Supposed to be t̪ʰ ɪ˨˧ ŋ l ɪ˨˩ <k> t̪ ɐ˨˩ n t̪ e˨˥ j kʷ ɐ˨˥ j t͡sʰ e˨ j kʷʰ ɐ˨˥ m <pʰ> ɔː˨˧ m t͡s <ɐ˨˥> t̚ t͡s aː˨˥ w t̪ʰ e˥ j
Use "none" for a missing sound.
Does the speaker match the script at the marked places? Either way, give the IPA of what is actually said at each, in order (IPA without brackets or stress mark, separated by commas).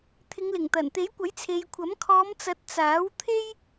ŋ, kʰ, ɐ˨˥